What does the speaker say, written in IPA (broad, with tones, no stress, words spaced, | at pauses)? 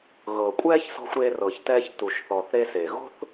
ɣɤ˩kʷʼɛː˥çsɔ̤˧xʷ ɾeː˧rɤː˩çtɛː˧ç tu˩ʃθɔ˩θ ɾe˧se˩ɣo̤˥θ